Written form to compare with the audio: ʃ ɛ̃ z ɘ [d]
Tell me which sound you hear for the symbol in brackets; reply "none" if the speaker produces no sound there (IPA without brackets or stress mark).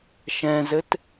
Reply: t